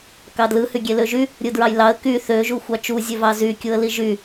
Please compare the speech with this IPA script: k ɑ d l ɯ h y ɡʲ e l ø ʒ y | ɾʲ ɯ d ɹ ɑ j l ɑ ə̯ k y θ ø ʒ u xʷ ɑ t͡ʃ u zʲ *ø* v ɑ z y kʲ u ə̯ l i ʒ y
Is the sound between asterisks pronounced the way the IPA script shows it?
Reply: yes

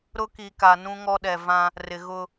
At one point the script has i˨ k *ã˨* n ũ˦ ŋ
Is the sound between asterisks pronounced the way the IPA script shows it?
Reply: no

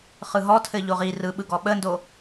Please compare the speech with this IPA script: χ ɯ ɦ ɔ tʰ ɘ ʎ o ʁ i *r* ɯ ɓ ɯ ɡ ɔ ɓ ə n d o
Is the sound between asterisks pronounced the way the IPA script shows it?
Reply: yes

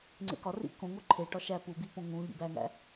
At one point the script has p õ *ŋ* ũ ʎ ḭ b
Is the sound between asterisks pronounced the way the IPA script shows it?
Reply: yes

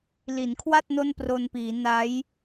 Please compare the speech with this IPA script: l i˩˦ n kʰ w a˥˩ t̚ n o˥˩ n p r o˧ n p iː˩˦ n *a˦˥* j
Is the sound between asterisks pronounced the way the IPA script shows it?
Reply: yes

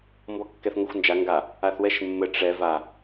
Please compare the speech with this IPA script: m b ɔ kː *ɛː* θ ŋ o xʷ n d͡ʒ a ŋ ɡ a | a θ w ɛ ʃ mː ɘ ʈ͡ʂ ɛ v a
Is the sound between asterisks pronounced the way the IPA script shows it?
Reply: no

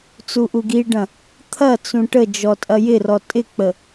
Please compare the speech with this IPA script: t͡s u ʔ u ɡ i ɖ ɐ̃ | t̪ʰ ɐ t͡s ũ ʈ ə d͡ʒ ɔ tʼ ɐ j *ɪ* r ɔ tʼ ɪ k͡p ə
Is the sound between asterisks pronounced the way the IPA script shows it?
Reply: yes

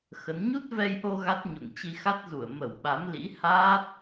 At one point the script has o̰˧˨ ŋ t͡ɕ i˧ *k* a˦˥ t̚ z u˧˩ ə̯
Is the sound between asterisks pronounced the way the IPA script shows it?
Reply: no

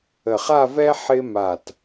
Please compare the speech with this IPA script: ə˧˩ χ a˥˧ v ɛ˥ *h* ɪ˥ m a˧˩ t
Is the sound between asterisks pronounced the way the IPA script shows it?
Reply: no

